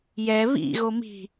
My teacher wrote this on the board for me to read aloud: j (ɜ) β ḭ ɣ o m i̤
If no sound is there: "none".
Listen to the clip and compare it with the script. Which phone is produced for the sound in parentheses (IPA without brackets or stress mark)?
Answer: ɛ